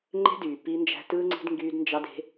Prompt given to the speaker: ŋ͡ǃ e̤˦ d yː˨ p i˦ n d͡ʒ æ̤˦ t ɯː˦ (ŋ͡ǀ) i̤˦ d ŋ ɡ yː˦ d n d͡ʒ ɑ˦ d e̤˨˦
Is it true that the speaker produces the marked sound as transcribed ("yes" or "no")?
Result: yes